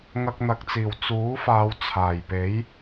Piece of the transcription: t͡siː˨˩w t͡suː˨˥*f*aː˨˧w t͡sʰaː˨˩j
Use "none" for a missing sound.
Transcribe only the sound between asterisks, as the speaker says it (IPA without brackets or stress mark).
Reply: f